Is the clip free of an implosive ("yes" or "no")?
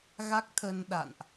no